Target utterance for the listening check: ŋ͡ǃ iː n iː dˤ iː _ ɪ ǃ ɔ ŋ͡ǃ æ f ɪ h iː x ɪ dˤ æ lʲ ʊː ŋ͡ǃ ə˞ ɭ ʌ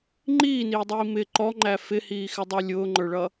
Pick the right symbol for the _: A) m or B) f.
A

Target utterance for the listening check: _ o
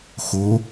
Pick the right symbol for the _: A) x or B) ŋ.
A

